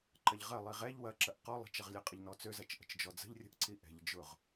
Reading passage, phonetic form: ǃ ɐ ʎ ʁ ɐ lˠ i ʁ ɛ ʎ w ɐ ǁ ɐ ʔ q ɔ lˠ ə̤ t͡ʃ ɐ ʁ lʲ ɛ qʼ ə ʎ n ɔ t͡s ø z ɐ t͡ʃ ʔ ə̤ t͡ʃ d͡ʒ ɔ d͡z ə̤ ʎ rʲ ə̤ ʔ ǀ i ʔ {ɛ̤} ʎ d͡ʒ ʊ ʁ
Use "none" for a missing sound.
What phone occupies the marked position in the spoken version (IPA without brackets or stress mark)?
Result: ɛ̤